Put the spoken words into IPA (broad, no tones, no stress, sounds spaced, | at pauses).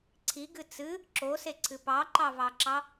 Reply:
ǀʰ i ɡ ɨ t͡s ɨ | ǁ o s e ǀʰ ɨ p ɑ ǃ ɑ v ɑ ǁ ɑ